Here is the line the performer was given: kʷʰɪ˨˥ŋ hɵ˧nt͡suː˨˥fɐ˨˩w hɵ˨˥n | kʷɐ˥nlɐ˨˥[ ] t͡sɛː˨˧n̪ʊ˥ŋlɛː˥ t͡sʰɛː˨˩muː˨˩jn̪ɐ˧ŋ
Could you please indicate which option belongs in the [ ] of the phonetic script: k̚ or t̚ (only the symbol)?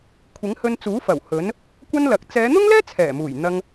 k̚